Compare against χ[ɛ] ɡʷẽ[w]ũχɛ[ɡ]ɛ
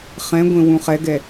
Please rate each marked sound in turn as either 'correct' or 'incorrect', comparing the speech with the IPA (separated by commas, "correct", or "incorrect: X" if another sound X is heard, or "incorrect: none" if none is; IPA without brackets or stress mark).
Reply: incorrect: ɛ̃, correct, correct